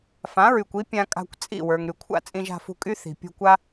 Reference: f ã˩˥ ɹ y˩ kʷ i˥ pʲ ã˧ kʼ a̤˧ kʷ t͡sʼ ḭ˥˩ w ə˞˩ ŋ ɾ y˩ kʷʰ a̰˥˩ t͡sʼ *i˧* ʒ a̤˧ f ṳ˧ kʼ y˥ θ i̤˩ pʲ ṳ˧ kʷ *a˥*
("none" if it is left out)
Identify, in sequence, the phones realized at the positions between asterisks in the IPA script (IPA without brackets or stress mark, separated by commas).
ĩ˧, a˥